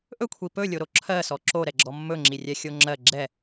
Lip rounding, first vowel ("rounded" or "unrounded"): rounded